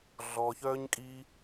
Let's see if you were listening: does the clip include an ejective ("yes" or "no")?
yes